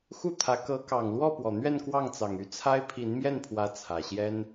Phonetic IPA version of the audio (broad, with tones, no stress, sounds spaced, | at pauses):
x u˥˩ t̪ʰ ä˧˥ k ɤ˧˥ k ɑ˨˩ ŋ l w ɔ˥˩ p w ɔ˨˩ n̪ ɥ ɛ˥˧ n k w ɑ˥˩ ŋ t͡s ɑ˨˩ ŋ y˥˩ t͡sʰ a˥ ɪ̯ pʰ i˧˥ n m j ɛ˥˩ n pʰ w ä˧˥ t͡sʰ ä˨˩ ɕ j ɛ˥ n